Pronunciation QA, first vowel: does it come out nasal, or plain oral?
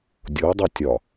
oral